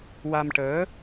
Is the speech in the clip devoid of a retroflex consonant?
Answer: no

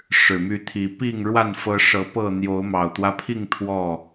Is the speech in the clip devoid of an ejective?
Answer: yes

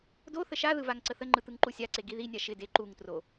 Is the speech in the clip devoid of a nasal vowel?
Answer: yes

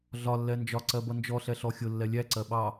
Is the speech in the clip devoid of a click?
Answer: no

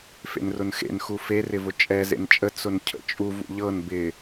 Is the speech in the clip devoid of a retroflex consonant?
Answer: yes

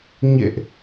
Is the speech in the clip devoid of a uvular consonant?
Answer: yes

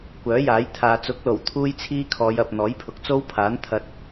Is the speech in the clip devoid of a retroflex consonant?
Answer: yes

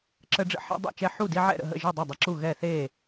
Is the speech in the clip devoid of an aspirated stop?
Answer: yes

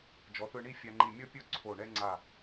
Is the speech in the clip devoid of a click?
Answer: no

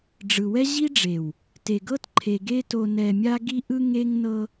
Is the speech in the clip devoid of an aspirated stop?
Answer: no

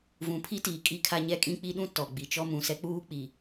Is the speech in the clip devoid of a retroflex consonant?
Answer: yes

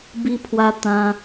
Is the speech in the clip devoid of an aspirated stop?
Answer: no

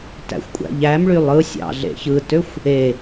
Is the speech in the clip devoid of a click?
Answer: yes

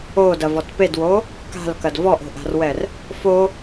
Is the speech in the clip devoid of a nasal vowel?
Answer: yes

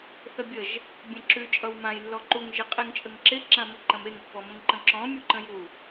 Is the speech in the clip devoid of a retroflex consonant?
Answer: yes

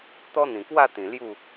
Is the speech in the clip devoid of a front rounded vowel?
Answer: yes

